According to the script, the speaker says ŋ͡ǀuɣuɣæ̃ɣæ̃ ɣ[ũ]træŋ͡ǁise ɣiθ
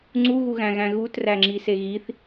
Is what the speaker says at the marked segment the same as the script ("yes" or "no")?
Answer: no